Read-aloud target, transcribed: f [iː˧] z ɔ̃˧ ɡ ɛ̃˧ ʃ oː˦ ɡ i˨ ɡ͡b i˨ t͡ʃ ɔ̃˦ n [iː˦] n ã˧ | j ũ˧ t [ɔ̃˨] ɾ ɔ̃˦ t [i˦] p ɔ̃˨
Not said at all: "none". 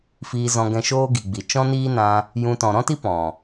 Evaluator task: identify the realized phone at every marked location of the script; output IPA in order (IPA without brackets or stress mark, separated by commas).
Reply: iː˧, iː˦, ɔ̃˨, i˦